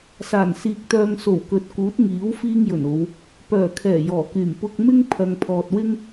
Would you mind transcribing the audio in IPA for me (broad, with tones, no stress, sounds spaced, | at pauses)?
s aː˨˩ n s iː˨ k̚ t̪ œː˧ ŋ s o˨˩ w k ɵ˨˥ t̚ k uː˨˥ t̚ ŋ iː˨˥ w f iː˥ ŋ j ɵ˨˩ n o˨˧ w | p œː˨˩ kʰ ɛː˨˩ j ɔː˨˩ k yː˨˩ m p ʊ˧ k̚ m ɪ˥ ŋ pʰ ɐ˨ ŋ pʰ ɔː˨ t̚ w ɪ˥ ŋ